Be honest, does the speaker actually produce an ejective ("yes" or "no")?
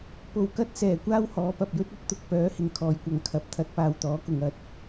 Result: no